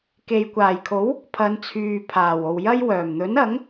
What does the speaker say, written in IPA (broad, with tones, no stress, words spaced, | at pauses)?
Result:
ke˨jkʷaː˨˩jkʰo˨˥w | pʰɐ˨˧nt͡sʰyː˨ pʰaː˨˩wo˨w jɐ˥jwœː˨˩m n̪ɵ˨˥nɐ˨˥ŋ